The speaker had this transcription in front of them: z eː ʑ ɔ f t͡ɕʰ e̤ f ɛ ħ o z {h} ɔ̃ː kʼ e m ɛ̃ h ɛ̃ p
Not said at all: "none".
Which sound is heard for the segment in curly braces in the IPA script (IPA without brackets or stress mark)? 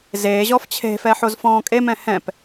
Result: f